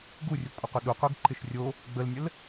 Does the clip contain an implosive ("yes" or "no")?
yes